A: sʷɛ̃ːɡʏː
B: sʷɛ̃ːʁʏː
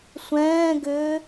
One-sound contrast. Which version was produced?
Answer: A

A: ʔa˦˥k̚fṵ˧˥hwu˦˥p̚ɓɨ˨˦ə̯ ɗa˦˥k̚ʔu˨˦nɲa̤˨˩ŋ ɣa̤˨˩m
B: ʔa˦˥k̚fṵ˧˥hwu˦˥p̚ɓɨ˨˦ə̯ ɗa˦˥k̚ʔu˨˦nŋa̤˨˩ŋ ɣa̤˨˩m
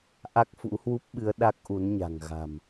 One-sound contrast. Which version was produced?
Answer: A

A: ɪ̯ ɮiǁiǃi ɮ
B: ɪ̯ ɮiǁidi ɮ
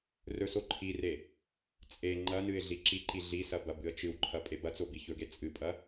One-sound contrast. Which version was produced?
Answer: A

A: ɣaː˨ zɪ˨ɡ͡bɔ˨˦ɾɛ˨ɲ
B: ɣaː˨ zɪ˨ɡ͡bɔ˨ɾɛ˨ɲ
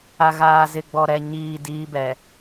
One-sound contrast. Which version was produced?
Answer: B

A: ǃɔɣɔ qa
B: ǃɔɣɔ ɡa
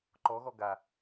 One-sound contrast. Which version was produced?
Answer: B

